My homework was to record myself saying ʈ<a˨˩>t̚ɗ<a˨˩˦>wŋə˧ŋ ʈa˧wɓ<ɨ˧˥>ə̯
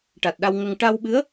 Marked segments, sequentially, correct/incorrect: correct, incorrect: a˧, correct

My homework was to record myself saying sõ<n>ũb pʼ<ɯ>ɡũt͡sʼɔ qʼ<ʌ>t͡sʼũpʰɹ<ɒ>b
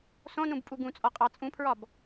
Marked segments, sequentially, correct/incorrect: correct, incorrect: u, incorrect: ɑ, correct

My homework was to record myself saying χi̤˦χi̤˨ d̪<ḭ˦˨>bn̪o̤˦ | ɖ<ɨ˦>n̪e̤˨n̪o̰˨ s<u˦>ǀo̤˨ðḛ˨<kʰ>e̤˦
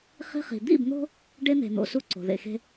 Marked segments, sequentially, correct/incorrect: correct, incorrect: e˦, correct, incorrect: x

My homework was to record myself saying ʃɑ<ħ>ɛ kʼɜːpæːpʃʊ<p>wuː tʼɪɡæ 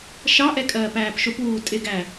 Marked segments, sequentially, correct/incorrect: incorrect: ʔ, correct

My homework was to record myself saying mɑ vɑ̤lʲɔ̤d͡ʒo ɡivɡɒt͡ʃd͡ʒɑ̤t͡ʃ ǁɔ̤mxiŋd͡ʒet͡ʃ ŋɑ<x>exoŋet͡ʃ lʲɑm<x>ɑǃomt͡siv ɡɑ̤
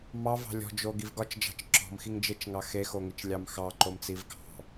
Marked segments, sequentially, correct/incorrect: correct, correct

